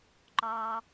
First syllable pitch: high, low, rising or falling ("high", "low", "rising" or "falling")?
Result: high